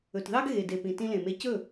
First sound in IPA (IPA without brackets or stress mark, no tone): ɵ